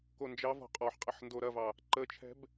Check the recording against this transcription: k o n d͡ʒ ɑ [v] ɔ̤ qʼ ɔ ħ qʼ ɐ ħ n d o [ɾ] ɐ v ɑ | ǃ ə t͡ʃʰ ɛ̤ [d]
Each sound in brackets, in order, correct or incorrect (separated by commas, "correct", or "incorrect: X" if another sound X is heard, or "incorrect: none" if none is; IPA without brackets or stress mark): correct, correct, incorrect: b